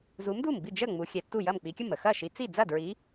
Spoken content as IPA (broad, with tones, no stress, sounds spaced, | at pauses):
z u˨˦ m d u˥˩ m b i˥˩ d͡ʒ ə˥˩ ŋ͡m u˨˦ xʲ ɛ˨˦ tː u˥˩ j ɐ˥˩ m k͡p i˨˦ kʲ ə˥˩ m ə˥˩ x ɐ˥˩ ʃ i˨˦ t͡s i˥˩ d͡z ɐ˥˩ d ɹ i˨˦